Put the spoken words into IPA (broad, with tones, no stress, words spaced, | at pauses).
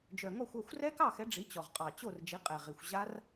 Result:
d͡ʒœ˨˩ŋɔ˥˨xʷʌ˥˨xʷ rɛ˦˥kɑ˥˨xɛ˨˦ ɖ͡ʐi˨˦t͡ɕɔ˨˩ʁ qʼɑ˨˩ t͡ɕo˥˨r d͡ʒi˨˦qʼɛ˨˩ʁi˨˩xʷ ʑa˦˥r